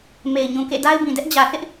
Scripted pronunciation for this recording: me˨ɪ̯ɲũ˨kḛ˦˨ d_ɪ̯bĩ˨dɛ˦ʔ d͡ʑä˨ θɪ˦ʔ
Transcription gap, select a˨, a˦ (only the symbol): a˦